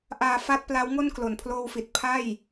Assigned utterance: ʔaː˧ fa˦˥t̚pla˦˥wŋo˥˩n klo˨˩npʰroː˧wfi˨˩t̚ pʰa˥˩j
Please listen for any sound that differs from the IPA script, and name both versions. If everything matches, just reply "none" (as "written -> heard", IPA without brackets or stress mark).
r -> l